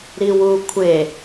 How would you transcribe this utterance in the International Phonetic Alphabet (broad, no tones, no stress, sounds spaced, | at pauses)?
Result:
ɾ i w u kʷʰ e